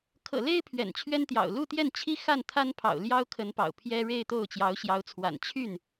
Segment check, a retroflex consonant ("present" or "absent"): present